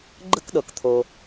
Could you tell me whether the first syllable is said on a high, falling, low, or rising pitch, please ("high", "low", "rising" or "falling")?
high